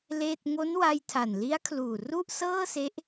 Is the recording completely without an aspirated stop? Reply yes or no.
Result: no